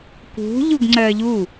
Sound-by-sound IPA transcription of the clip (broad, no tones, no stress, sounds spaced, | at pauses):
k ṳ ʎ u ɡ ŋ͡ǀ ɜ ʎ u